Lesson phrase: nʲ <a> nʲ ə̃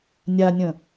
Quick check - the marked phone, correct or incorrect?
correct